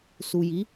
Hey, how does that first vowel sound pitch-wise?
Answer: low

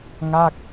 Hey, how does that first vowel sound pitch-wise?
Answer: falling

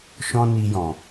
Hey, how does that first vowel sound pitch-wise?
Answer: high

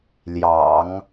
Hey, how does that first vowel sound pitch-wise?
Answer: low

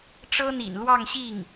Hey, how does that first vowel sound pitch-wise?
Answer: high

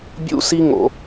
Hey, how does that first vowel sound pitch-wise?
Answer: high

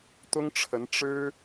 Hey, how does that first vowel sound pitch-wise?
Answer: high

